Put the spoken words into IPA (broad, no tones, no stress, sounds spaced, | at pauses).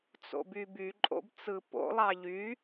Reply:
t͡s o̰ b y b y ǃʼ o̰ b t͡s ɯ p o̰ lˠ ɑ ʎ y